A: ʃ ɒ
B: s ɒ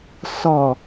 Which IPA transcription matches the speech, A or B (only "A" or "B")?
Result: B